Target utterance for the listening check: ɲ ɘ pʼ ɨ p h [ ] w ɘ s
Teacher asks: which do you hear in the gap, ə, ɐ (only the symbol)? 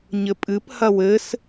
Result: ɐ